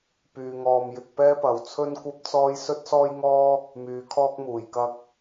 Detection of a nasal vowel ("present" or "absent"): absent